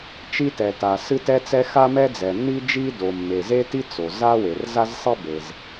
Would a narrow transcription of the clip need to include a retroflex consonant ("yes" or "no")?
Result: no